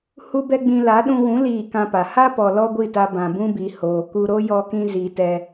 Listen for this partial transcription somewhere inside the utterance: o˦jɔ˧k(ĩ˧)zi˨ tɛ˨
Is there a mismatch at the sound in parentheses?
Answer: no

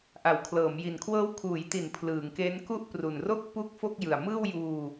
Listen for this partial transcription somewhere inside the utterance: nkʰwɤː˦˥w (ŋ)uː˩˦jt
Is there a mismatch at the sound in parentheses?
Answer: yes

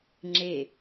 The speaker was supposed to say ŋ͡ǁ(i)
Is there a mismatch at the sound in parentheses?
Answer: yes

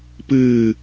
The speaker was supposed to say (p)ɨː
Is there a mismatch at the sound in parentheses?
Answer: no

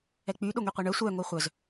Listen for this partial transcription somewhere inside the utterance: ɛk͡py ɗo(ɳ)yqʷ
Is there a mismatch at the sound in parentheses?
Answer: yes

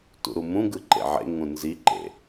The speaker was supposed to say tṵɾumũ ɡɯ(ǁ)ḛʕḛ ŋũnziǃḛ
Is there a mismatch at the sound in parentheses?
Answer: yes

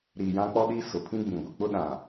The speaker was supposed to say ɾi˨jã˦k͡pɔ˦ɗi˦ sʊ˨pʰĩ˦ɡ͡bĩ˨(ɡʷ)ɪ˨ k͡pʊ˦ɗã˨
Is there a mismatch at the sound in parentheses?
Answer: no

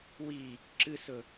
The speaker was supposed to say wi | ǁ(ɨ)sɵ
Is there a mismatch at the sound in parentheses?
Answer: no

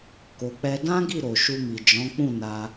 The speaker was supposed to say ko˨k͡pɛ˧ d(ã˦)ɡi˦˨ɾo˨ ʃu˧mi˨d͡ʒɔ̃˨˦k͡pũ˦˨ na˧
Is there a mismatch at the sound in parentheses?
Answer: no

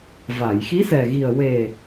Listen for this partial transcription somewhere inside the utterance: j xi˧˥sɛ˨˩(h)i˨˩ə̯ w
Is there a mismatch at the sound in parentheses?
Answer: yes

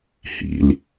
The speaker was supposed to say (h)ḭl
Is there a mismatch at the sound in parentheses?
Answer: no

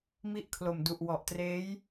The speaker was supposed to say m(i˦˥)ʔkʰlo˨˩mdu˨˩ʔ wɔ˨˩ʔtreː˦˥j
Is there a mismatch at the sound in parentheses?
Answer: no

